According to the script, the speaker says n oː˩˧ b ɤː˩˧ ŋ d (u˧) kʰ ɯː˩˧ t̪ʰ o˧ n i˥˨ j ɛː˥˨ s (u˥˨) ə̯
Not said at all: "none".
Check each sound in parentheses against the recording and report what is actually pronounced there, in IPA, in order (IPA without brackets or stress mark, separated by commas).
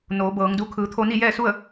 u˧, u˥˨